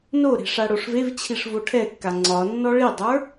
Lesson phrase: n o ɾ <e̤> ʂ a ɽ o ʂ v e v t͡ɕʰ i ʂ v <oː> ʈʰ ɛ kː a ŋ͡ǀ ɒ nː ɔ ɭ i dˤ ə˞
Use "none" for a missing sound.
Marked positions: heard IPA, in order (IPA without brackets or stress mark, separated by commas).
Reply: e̤, o